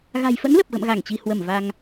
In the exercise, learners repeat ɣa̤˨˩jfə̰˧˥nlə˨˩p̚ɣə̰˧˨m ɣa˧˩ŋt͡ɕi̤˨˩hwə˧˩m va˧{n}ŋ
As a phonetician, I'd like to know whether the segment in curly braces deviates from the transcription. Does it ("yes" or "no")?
yes